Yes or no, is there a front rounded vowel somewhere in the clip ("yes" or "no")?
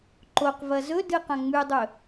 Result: no